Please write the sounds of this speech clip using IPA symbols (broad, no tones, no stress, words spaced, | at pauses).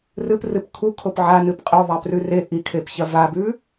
rɨprɨp kʰukʰop ʕanɨp qʼɵðˤaprʉ re ʔikʰepçɐ vabʉ